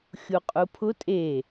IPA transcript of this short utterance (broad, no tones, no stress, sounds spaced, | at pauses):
xʲ u qʼ u pʰ ʊ tʼ e